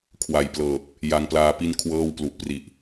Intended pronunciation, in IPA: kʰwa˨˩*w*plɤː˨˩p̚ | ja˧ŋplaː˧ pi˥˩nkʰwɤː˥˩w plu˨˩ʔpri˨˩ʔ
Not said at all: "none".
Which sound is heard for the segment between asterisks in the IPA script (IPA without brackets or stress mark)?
j